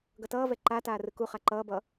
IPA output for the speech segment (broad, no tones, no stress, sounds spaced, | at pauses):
ɡ ʌ t ʌː v ɛ ǃ a t aː r ɯ k u χ a ǃ ʌː b ʌ